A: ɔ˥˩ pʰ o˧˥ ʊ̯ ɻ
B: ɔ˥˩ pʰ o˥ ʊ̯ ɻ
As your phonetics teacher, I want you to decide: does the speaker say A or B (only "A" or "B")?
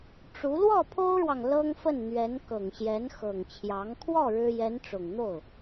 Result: B